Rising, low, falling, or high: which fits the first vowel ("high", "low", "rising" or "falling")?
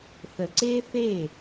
low